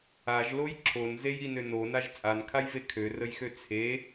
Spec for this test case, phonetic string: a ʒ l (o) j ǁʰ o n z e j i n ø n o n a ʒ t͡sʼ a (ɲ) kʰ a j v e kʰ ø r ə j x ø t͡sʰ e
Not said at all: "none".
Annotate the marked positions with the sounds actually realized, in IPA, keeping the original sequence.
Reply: o, n

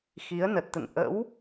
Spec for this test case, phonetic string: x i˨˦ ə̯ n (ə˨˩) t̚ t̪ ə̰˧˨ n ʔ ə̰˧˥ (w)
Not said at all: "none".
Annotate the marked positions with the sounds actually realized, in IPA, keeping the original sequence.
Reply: ə˨˩, w

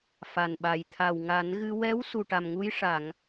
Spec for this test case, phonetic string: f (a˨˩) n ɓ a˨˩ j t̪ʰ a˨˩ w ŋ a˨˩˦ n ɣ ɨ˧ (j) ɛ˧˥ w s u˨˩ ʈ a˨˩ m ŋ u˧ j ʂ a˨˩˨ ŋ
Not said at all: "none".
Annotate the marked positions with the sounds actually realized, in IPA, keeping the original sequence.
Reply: a˨˩, w

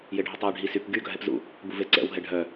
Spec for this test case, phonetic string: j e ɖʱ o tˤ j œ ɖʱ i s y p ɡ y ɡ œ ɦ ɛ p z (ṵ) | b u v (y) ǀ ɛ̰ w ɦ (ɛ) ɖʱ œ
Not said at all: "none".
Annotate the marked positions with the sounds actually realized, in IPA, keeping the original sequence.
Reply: ṵ, e, ɛ

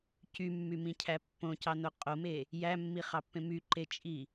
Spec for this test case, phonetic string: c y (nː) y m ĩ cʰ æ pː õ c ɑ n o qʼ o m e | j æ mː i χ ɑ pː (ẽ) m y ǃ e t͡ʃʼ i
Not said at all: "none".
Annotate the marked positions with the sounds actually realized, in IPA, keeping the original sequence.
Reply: mː, ẽ

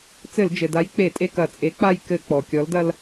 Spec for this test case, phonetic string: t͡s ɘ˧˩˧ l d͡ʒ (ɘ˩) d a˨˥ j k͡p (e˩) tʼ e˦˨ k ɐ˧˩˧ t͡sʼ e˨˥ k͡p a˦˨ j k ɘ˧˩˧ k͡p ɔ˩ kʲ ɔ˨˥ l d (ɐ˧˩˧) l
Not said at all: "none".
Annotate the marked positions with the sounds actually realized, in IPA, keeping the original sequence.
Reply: ɘ˩, e˧˩˧, ɐ˦

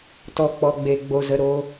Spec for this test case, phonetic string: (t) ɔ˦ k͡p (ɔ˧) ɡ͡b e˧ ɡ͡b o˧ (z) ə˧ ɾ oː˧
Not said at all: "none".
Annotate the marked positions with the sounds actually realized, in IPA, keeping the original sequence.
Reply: t, ɔ˧, z

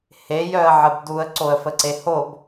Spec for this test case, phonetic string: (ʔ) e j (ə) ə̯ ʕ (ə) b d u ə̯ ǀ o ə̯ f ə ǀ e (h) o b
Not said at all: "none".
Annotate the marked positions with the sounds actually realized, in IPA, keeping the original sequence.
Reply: h, œ, ə, h

